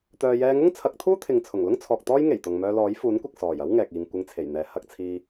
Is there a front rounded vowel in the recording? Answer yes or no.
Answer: yes